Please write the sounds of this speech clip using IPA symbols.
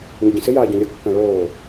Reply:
ŋ ɪ ɟ ĩ s ɪ j aː ɟ õ lʲ ɤ kː ã ɭ oː

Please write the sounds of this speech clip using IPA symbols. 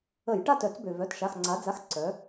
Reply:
ə˧˩˧ j ʈ a˥˩ t œ˧˩˧ t͡s b ø˩ v œ˩˧˩ t ʃ a˩˧˩ x ŋ͡ǀ a˩˧ d͡z a˩˧˩ x ǀ œ˩˧

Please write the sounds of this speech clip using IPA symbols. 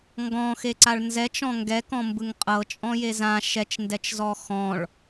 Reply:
ŋ ɡ ɔ̃ x e ǀ a ɭ n z ɛ t͡ʃ ɔ̃ ŋ ɡ ɛ k ɔ̃ m b ɯ ŋ qʼ ɤ t͡ʃʼ ɔ̃ j e z ã ʃ ɛ t͡ʃ n d ɛ t͡ʃ z ɔ x ɔ̃ ɭ

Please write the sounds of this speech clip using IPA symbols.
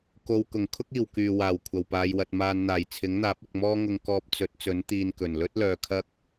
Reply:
k o˨ w k ʊ˨˩ ŋ kʰ ʊ˥ k̚ iː˨˩ w k yː˨˩ w aː˨˩ w kʷʰ ɐ˨˩ w p aː˨ j w ɐ˨ t̚ m aː˨ n n̪ aː˨˩ j t͡sʰ ɪ˨˥ ŋ n̪ aː˨˥ p̚ ɪ˨ k̚ m ɔː˥ ŋ ʊ˧ ŋ k ɔː˧ p̚ t͡s ɵ˨˥ t̚ t͡s ɵ˨˥ n t̪ iː˧ n k ɵ˨˩ n l ɵ˥ t̚ l œː˨ kʰ ɐ˥ k̚

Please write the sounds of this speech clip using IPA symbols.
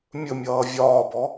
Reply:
mʲ ɵ mʲ ʌː vʲ ɒː b ɔ

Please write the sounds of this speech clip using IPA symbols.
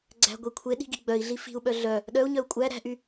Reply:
ɡ͡ǀ æ̤ ɡʷ i kʷʰ e ɗ i̤ ɡ i ɡ͡b œ i̯ ɮ i f i̤ u̯ ɓ œ ɮ œ | ɗ œ u̯ ɲ œ u̯ kʷʼ æ ɾ æ̤ ʔ y

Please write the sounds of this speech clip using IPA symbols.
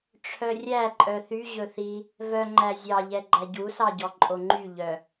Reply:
ʈ͡ʂʰ œ rʲ æ ǃʼ œ θ y ʑ ɵ θ i | v œ ŋ͡ǃ æ zʲ ɑ ʎ ɛ ɡ͡ǃ æ ɟ u s ɑ ɟ ɔ ǃʼ o ŋ͡ǃ y ʎ œ

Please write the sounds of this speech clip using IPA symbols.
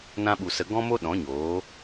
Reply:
n ã˧ ɓ u˨ s ə˨ ɡ ɔ̃˧ m o˧ ɗ ɔ̃˨˦ ɲ oː˨˦

